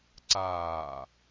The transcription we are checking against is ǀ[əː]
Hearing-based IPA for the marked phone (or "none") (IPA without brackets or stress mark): aː